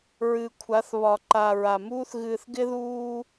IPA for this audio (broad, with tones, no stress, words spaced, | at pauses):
ɹɨ˨kʷʰa˨˦θ βɒ˨ǃa˨ ɹa˨muː˦θ ɣɨː˨θɡɪ˦ðuː˦